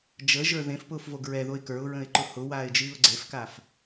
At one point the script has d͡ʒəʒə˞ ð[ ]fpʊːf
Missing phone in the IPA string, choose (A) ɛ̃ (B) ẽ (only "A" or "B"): B